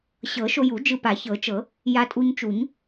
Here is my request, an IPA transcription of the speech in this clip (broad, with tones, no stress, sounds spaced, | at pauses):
ɕ ɤ˨˩˦ ʃ o˧ j u˨˩˦ d͡ʒ ɯ˧ p a˨˩˦ ç ɤ˨˩˦ t͡ʃ ɤ˨˩˦ | j a˧ tʼ u˧ ɲ t͡ʃ u˨˩˦ ɲ